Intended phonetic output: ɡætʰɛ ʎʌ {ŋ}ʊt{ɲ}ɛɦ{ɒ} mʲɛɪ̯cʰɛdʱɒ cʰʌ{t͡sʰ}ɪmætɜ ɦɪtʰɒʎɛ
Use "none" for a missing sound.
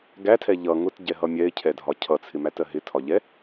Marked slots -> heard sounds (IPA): ŋ, ɟ, ʌ, t͡sʰ

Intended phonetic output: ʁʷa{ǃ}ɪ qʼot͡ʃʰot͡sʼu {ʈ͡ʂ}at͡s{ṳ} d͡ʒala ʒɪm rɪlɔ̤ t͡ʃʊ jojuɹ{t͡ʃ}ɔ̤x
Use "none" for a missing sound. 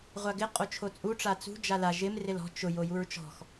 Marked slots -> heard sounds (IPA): ɡ, ʈ͡ʂ, ṳ, t͡ʃ

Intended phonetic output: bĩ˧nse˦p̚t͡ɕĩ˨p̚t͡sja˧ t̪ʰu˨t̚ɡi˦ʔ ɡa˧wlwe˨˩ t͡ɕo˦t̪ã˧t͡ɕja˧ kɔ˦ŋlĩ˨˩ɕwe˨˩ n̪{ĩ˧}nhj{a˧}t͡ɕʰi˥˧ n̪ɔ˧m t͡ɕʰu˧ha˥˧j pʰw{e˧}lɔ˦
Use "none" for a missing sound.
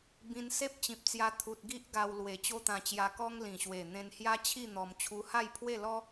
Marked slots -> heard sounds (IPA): ẽ˧, a˦, e˥˧

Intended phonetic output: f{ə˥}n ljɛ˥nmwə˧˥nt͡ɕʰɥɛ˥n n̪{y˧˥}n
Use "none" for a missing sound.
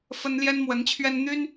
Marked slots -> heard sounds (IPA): ə˥, y˥

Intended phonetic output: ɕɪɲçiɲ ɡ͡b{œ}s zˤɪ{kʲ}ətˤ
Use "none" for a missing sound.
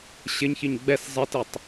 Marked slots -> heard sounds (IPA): ɛ, t

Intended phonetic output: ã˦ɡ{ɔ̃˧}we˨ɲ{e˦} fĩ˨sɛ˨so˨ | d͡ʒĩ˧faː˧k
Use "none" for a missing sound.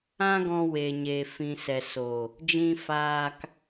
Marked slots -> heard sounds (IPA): ɔ̃˧, e˨

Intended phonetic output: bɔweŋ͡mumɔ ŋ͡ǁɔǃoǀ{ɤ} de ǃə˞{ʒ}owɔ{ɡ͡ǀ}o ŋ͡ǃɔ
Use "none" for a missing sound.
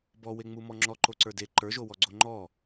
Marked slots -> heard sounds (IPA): ə˞, ʒ, ɡ͡ǀ

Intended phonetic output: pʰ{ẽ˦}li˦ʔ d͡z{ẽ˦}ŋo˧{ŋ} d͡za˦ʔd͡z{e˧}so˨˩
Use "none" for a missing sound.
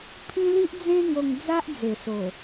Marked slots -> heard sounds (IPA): ĩ˦, ẽ˦, ŋ, e˨˩

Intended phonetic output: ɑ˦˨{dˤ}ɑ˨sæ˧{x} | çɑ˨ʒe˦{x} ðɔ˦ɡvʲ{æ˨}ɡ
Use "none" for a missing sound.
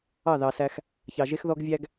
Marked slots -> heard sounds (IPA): ð, x, x, æ˦

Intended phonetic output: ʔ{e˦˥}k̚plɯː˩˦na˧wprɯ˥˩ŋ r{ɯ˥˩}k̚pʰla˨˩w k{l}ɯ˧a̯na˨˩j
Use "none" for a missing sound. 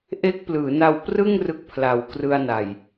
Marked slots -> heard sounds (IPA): e˦˥, ɯ˦˥, r

